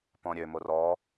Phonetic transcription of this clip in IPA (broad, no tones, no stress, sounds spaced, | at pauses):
p ɔ̃ ɾʲ ø m o r ɔ